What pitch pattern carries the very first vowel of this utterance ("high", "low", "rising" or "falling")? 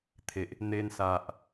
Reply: low